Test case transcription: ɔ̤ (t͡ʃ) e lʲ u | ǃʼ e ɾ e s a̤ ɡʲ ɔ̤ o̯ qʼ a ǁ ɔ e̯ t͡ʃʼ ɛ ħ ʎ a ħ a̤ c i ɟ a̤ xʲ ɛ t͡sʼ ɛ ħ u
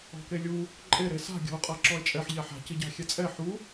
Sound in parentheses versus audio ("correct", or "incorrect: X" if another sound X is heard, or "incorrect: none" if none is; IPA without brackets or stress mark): incorrect: k